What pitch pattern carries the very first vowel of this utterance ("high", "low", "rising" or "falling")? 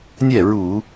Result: falling